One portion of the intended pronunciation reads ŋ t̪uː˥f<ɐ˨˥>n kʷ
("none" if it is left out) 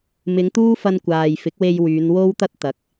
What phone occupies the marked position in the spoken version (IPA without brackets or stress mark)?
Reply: ɐ˧